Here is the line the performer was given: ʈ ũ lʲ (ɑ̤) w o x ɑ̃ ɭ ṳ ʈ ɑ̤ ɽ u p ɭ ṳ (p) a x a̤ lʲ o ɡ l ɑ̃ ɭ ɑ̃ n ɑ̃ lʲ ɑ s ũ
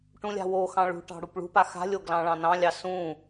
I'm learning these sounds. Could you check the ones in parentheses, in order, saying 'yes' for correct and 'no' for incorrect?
no, yes

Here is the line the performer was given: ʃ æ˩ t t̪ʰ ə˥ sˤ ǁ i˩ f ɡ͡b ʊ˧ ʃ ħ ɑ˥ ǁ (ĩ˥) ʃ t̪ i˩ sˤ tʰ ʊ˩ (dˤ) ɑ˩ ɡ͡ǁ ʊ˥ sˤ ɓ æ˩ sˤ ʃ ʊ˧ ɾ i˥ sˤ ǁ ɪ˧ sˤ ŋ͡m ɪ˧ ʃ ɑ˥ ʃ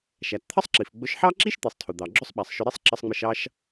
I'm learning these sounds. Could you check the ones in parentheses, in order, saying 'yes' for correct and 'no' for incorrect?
no, no

